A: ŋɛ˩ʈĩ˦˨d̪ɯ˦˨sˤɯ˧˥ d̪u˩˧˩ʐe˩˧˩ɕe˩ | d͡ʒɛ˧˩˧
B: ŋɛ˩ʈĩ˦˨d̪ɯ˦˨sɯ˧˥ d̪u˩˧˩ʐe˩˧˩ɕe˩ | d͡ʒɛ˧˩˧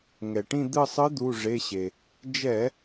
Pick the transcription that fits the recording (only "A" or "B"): A